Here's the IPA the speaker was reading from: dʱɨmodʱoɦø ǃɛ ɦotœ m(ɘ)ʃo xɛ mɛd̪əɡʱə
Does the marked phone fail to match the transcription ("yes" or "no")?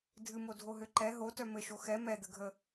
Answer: no